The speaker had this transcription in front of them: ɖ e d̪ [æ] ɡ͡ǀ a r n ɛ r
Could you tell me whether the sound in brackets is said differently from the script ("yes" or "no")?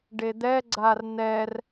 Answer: yes